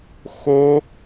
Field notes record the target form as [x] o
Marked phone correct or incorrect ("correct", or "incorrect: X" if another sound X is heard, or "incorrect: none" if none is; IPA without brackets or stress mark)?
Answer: correct